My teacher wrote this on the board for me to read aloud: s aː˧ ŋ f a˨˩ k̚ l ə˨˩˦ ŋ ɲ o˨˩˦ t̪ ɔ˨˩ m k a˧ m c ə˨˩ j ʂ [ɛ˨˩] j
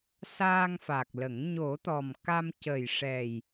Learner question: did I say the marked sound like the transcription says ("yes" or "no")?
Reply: yes